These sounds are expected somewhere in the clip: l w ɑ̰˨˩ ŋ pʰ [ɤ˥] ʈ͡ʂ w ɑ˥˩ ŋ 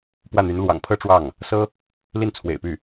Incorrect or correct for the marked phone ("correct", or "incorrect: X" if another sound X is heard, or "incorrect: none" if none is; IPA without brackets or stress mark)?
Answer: correct